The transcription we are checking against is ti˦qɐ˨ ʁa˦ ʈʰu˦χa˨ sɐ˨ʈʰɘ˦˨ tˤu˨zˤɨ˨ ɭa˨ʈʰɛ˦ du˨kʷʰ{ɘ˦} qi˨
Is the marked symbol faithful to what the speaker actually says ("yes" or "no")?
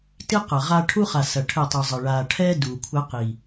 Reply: yes